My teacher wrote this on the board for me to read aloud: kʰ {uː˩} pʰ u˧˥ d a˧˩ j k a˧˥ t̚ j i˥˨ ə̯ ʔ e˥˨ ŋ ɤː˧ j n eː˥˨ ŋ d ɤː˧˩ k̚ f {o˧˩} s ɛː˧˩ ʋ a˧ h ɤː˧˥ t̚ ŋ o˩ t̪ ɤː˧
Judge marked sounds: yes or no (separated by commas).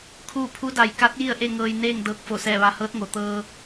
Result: no, yes